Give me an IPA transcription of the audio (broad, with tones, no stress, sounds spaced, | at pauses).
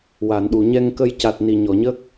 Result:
w a˨˩˨ n ɗ u˨˩˨ ɲ ɛ˧ ŋ k ə˧ j c a˨˩ t̚ n i˨˩ ɲ ɔ˨˩˨ ɲ ə˦˥ k̚